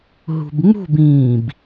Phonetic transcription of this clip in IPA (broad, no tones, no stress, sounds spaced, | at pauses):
ɦ ṳ b ŋ͡m ṳ b ĩː b